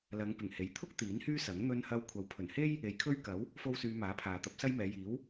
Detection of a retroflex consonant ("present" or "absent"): absent